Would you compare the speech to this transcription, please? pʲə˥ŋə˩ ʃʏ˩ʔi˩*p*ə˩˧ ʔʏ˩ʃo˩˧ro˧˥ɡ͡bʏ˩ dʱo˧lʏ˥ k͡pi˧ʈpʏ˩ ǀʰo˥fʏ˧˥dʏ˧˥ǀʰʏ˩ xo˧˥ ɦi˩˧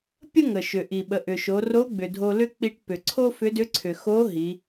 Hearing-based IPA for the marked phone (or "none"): ɓ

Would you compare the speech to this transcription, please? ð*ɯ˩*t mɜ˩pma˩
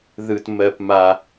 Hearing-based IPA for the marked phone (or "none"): ɯ˩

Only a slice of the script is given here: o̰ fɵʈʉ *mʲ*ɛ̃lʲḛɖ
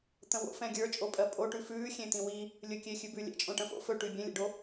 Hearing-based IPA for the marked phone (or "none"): bʲ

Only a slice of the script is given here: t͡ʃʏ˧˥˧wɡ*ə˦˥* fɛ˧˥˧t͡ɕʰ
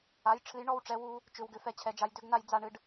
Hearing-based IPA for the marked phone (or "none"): ʏ˦˥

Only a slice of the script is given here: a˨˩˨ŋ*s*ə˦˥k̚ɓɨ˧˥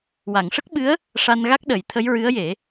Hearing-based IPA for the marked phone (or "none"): ʂ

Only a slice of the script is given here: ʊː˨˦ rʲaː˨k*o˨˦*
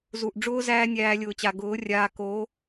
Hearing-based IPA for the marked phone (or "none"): o˨˦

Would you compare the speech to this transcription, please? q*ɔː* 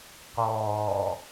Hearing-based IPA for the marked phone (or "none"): ɔː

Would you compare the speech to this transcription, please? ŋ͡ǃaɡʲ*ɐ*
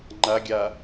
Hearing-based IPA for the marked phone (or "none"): a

